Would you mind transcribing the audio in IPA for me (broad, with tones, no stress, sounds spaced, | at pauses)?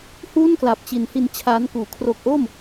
h uː˥˩ n k l a˨˩ p̚ t͡ɕ i˨˩ n h i˧ n t͡ɕʰ aː˦˥ n k uː˨˩ kʰ r o˦˥ k̚ ʔ o˥˩ m